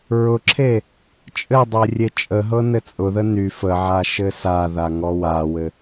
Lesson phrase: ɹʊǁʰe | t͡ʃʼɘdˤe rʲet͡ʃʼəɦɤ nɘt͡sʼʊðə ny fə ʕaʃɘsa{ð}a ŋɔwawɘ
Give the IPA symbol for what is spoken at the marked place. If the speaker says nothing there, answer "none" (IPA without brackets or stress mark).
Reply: ð